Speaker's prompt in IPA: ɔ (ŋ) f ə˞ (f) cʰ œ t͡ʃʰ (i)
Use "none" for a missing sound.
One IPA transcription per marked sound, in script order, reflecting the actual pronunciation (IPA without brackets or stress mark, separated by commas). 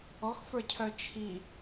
x, none, i